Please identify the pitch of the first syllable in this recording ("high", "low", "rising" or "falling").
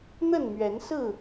falling